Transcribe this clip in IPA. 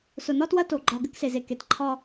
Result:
s ʊ˨ n ɒ˦ t w ɐ˦ t o˨ ɡ͡ǃ ɒ˨ ɡ ɘ˦ k s e˨ z e˨ k e˨ t ǃʰ ɒ˦

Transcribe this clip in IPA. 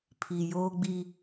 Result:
pʰ i˨ j oː˦ ɡ͡b i˦

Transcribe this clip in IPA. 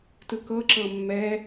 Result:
t ɯ k ɤ ǁ ɤ mː ɛ

